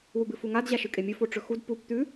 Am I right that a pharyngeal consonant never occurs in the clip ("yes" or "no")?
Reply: yes